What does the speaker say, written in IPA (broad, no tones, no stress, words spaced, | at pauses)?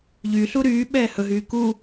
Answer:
ʎyɬu ɾyːɓɛː hɵɦyː ku